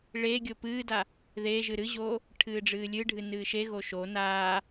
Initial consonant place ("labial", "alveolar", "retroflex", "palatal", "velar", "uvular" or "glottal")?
retroflex